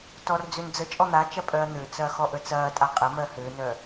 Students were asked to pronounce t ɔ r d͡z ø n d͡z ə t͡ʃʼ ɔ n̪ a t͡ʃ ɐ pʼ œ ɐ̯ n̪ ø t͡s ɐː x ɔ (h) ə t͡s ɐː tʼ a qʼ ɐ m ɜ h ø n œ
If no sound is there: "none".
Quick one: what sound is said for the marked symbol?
ʔ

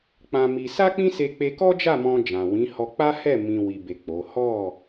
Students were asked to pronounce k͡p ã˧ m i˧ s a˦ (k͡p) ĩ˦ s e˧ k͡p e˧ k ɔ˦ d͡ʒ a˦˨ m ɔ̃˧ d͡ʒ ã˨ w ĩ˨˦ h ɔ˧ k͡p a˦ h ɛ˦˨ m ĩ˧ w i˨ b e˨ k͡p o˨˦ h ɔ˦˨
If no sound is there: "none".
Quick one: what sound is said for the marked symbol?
k͡p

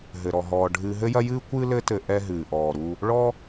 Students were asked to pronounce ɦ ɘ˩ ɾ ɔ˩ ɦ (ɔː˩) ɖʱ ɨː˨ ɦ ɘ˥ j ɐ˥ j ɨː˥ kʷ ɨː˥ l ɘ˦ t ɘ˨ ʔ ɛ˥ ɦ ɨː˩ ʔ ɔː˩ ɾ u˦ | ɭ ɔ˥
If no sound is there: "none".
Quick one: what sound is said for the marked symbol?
ɔː˩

